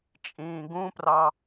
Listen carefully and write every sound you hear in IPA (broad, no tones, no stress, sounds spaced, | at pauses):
t͡ʃʼ ĩː ɡ ũ p r ɑ